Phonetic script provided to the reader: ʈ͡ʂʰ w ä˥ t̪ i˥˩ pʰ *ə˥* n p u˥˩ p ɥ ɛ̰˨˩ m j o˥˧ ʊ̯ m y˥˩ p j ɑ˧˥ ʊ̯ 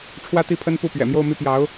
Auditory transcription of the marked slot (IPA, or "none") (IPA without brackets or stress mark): ə˥